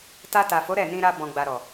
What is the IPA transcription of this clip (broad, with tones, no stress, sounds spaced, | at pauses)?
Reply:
t a˧ t a˨ f o˨˦ ɾ ɛ˦˨ n ĩ˧ ɾ a˧ b ɔ̃˨ ɡ͡b a˨ ɾ ɔ˨